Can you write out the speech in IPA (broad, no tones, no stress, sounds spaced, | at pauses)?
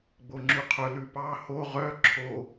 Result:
ɡ͡b o ŋ͡ǁ ʉ qʰ ɵ l ʉ p ɑ h o ʁ œ ǁʰ o